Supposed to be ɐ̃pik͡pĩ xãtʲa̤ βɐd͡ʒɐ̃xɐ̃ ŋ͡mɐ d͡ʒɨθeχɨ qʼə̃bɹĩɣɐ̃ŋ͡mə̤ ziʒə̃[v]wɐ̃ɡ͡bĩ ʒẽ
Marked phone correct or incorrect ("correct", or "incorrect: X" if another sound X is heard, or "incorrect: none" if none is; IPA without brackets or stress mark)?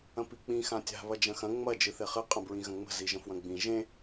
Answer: incorrect: f